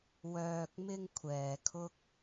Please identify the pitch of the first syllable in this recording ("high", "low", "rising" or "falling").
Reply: low